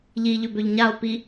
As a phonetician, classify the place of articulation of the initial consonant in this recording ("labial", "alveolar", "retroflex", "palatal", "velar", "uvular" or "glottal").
palatal